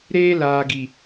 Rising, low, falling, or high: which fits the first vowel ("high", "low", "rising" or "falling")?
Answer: high